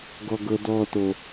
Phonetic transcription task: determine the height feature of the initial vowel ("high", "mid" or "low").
mid